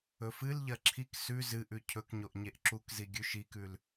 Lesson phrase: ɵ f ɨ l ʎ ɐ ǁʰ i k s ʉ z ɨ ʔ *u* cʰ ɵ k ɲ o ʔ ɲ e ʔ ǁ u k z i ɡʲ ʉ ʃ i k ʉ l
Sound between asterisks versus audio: incorrect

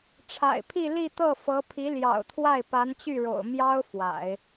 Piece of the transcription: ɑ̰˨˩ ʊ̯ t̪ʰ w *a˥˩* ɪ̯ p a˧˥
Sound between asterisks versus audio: correct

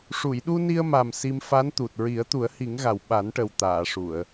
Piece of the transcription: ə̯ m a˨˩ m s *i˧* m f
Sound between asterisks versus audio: correct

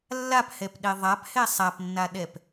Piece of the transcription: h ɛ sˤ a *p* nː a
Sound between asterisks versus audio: correct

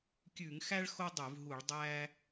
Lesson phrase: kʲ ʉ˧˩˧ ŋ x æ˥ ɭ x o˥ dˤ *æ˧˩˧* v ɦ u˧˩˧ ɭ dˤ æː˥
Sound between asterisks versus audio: incorrect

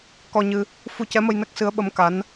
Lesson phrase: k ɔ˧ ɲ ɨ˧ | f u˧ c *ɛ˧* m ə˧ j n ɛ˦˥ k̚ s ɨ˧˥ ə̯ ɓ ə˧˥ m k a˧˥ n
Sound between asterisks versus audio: incorrect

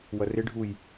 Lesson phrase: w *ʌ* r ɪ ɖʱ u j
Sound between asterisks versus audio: correct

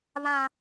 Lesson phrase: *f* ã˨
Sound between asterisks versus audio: incorrect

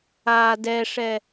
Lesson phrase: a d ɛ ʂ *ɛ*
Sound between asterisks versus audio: correct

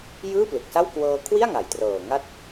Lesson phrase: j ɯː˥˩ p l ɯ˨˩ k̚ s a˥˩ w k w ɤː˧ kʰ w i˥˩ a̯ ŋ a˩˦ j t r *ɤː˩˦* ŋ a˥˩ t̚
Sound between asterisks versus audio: incorrect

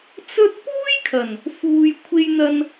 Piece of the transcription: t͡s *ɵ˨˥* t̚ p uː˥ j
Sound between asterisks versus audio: incorrect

